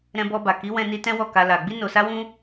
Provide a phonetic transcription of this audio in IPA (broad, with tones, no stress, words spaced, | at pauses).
ɾɛ̃˧bɔ˧ba˨ ki˨˦wɛ̃˧ni˧ tɛ̃˦wɔ˦˨ ka˧la˨ ɡ͡bi˧no˨sa˧wũ˧